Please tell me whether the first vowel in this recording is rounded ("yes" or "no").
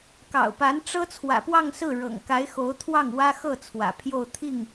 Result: no